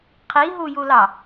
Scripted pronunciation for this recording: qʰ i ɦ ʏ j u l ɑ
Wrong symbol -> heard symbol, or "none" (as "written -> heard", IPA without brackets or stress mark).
ʏ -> u